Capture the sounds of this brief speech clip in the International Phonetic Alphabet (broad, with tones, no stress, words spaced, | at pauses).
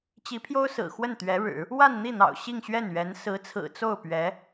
t͡ɕi˧˥pʰjo˥ʊ̯ sɹ̩˨˩xwə˥˩nt̪ɥɛ˧˥ɻɻ̩˨˩˦ | wa˥˧nn̪i˥˩n̪ɑ̰˨˩ʊ̯ ɕi˥˧ŋɕɥɛ˥˩nɥɛ˧˥n sɹ̩˧˥t͡sʰɹ̩˨˩ t͡so˥˩ʊ̯pɥɛ˧˥